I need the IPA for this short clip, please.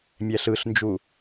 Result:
mʲɛɬɯɬnd͡ʒu

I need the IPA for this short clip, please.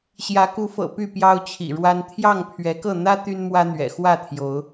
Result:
ɕjä˨˦ku˨˦fɤ̰˨˩ py˥˨pjɑ˦ʊ̯t͡ɕʰḭ˨˩ɻwa˦n t̪ʰjɑ˥˨ŋpʰɥɛ˨˦kɤ˥˨ n̪ä˦ t̪y˦nmwä˦n̪ɥɛ̰˨˩ xwä˥˨t̪ʰjo˨˦ʊ̯

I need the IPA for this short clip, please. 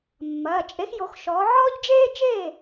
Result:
mːɐː˩˧˩t͡ʃʼe˨˥x jo˨˥xʃɔː˨˥ ʕɔː˦ʎd͡ʒeː˦ t͡ʃeː˥˩

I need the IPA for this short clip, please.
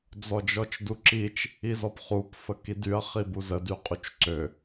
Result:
d͡zɔd͡ʒɔt͡ʃduǁit͡ʃ | izɔpχup fəkidyɐ̯ χibuzə dyqʼut͡ʃǀø

